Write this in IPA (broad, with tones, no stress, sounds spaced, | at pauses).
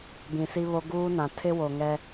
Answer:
b ĩ˨ s i˦ β o˦ ɡ uː˦ n ã˨ tʰ ɪ˦ w o˨ ŋ ɛ˦